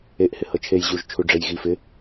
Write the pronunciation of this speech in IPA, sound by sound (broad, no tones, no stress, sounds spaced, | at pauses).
e ʔ h ɪ h ɤ t͡ʃʰ e j ʑ u ʒ t͡ʃʰ u ɖ͡ʐ e j ɣ i f ɪ